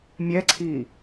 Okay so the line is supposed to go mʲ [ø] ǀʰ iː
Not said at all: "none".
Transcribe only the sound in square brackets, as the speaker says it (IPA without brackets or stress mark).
ɛ